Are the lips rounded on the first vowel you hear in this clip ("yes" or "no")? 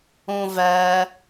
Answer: yes